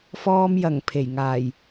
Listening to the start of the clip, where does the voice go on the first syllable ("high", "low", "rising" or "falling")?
high